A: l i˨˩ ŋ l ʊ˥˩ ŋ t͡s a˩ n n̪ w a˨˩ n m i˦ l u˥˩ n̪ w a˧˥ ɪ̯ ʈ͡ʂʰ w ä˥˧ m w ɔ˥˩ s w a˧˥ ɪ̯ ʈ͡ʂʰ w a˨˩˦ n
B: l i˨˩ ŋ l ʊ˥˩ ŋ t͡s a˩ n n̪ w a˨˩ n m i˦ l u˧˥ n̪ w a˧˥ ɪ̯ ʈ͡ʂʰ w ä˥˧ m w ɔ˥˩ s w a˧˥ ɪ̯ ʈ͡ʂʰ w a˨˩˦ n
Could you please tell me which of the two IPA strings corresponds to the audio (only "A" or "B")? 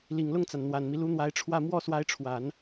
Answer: B